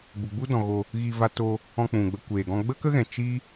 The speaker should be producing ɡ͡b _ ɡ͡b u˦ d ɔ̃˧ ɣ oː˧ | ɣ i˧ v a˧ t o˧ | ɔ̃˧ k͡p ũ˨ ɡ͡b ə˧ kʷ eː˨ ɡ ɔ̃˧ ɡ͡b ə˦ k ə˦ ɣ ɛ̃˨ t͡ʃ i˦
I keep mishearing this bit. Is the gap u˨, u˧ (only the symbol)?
u˨